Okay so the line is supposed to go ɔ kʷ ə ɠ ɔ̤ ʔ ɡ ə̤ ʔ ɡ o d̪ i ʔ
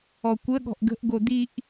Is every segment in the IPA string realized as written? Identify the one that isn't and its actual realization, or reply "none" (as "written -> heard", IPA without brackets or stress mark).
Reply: none